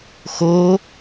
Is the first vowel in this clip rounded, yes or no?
yes